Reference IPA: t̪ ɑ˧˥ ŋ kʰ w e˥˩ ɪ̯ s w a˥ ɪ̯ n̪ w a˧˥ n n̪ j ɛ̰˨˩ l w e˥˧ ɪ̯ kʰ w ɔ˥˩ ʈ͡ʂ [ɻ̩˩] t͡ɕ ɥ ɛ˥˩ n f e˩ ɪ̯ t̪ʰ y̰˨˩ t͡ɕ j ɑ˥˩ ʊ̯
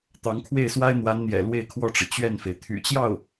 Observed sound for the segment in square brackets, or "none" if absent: ɻ̩˩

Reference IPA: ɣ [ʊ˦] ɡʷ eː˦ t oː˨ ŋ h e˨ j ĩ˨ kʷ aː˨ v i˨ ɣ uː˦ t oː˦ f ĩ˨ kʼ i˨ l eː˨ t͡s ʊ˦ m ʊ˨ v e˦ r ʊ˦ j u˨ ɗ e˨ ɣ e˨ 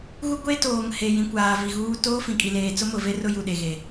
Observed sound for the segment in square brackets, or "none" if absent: u˦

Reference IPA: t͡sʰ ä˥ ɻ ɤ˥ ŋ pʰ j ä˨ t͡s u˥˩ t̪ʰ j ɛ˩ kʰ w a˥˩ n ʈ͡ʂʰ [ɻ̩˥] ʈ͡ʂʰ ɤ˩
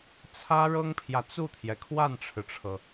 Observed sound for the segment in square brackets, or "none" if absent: ɻ̩˩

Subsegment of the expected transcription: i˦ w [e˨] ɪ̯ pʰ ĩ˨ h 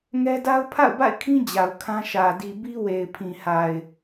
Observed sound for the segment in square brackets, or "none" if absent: e˨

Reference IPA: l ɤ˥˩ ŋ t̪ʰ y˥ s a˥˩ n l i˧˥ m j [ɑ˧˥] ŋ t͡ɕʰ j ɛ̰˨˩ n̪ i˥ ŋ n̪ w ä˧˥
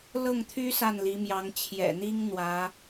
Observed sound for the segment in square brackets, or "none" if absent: ɑ˧˥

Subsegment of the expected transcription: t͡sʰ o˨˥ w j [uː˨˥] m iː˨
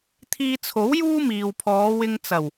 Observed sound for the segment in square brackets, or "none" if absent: uː˥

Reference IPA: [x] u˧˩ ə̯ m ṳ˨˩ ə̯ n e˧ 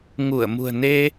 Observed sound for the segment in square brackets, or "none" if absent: ŋ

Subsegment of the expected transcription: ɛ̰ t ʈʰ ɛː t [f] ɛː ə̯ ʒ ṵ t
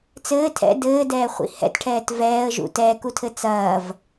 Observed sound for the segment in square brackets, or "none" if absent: v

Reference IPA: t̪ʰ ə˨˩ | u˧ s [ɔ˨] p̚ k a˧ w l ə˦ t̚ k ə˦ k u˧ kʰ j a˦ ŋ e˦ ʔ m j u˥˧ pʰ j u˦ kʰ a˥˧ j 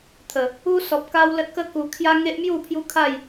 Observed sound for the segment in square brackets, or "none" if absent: ɔ˨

